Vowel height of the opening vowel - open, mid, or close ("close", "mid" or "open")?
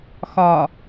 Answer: open